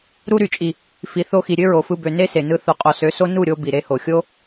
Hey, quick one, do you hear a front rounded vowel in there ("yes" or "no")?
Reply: yes